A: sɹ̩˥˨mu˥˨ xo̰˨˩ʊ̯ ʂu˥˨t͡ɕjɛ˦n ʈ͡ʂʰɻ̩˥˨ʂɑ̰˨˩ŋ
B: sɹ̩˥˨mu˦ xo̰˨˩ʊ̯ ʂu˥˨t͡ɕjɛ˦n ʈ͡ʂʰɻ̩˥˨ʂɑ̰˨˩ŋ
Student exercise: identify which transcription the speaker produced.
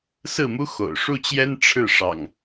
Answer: B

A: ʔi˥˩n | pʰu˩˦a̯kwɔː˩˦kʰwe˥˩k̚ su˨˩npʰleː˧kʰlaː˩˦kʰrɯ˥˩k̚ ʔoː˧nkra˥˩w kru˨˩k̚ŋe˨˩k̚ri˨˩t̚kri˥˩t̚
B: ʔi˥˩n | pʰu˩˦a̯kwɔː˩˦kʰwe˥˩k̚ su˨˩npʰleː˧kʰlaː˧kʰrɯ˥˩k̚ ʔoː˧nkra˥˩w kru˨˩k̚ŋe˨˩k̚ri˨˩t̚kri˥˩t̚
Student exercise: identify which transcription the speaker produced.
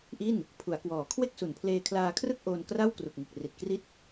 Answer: B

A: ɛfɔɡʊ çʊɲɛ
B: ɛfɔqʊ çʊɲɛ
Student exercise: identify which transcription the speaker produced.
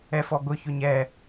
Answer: A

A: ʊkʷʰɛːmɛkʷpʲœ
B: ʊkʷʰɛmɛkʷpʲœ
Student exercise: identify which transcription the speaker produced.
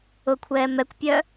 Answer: A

